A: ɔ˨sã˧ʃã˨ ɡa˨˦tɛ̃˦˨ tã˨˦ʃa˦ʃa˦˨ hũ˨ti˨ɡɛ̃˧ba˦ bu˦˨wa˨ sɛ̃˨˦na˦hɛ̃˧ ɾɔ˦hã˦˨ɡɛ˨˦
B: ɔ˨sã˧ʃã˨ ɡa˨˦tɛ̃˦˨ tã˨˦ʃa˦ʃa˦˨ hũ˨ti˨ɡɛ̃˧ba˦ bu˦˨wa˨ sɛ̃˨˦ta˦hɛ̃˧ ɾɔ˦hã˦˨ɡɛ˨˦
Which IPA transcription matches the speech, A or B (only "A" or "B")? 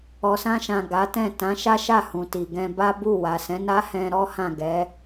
A